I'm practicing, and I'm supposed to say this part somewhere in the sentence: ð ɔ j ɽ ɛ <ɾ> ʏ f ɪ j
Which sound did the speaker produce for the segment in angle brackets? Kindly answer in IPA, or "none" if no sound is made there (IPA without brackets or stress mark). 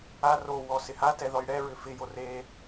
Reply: ɹ